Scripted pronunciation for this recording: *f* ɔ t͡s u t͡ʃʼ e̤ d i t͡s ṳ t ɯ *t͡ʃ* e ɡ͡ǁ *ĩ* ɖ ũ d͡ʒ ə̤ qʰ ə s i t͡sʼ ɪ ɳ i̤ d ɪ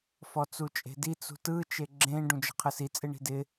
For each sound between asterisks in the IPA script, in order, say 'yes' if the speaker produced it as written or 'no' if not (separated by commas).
yes, yes, no